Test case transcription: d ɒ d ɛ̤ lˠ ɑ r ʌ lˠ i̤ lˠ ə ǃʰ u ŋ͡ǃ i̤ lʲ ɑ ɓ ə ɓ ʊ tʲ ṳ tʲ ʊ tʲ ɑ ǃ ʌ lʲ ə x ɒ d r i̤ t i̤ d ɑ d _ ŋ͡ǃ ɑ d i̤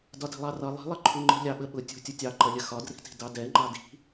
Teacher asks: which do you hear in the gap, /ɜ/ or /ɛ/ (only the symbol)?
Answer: ɛ